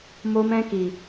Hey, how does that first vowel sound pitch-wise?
high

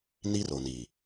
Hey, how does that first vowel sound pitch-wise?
high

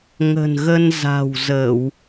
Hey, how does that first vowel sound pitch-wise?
low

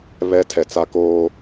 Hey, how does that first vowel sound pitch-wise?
high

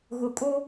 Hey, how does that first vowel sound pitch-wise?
low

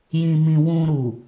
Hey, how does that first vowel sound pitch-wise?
low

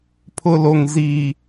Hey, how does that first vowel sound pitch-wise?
low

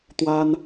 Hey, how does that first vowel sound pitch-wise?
high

